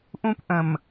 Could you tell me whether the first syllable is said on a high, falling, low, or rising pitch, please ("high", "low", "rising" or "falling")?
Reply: high